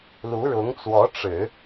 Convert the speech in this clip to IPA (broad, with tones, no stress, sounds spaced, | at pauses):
l u˧˥ ɻ ʊ˧˥ ŋ t͡s w ɔ˧˥ ʈ͡ʂ ɻ̩˨˩˦